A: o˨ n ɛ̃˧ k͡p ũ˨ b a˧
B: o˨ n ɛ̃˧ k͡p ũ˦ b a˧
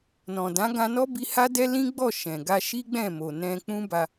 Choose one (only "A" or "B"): B